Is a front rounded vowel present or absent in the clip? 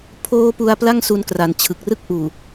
absent